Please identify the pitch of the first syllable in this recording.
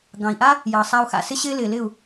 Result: low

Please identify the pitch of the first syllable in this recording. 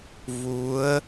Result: rising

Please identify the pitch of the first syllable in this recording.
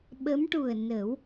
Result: rising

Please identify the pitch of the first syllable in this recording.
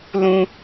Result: low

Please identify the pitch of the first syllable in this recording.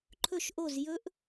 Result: falling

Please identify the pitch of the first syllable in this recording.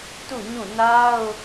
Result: falling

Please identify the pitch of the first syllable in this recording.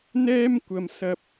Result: high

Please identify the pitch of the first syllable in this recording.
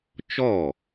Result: falling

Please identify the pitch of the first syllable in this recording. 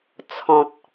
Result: low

